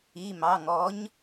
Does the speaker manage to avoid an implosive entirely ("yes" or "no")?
yes